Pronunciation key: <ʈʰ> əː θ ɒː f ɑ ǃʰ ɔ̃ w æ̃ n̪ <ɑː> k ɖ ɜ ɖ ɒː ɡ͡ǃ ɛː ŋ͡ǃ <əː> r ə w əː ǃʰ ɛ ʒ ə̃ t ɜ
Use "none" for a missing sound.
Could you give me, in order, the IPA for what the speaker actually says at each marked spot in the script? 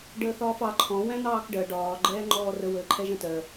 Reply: ɖ, ɑː, ɔː

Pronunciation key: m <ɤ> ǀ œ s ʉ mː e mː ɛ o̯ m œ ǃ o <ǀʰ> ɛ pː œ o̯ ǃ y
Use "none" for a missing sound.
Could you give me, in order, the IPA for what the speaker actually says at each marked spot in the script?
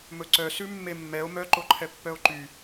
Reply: ɵ, ǃʰ

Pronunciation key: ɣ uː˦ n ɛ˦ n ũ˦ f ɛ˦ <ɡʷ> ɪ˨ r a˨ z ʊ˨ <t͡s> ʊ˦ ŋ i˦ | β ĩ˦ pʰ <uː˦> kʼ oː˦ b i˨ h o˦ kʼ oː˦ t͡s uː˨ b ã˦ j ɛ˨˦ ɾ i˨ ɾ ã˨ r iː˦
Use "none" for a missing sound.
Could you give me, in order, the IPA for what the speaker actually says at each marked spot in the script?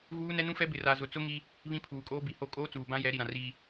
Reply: b, t͡s, uː˨

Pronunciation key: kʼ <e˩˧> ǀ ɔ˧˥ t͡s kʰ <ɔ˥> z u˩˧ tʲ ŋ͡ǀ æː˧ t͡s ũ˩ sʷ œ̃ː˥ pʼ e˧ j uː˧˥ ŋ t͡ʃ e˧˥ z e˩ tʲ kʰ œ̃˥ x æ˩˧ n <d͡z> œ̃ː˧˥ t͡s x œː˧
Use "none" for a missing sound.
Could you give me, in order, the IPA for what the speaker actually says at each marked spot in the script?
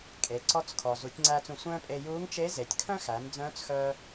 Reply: e˩˧, ɔ˩, d͡z

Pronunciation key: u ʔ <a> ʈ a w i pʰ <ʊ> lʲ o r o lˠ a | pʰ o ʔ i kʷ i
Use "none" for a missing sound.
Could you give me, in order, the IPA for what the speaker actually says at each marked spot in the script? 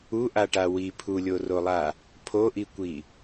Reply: a, u

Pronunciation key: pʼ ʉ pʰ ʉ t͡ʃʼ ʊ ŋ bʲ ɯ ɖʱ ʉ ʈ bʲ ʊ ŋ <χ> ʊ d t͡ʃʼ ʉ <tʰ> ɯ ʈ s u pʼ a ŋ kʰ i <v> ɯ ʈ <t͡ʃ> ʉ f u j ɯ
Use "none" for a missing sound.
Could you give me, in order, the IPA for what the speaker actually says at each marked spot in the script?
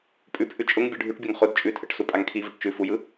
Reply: χ, tʰ, v, t͡ʃ

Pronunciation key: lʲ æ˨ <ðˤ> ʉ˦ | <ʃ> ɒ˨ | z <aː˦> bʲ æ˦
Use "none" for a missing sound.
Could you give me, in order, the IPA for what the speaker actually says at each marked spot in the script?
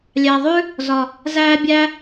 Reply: ðˤ, z, æː˦

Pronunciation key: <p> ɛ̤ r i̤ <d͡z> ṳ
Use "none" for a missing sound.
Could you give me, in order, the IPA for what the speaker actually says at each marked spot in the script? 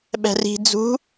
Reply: ɓ, d͡z

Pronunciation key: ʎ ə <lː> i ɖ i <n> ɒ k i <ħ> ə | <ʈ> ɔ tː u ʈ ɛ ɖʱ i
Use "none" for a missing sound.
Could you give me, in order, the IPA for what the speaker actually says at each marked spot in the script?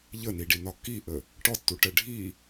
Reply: n, n, ʔ, ʈ

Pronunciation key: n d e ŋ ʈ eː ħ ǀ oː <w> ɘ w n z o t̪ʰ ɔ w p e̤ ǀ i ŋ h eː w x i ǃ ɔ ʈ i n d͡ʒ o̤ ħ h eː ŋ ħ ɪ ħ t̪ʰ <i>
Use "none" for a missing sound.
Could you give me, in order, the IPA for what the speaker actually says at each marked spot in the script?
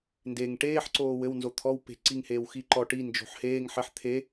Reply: w, e

